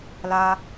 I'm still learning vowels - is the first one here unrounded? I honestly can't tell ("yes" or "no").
yes